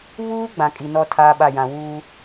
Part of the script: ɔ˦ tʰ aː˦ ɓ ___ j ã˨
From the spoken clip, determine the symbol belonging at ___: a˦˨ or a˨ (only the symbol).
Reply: a˦˨